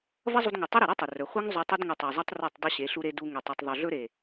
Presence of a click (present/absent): absent